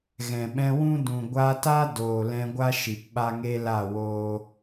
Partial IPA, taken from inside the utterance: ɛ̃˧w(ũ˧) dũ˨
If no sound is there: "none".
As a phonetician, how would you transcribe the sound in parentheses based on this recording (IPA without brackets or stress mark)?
ũ˦